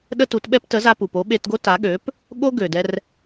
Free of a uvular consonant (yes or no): yes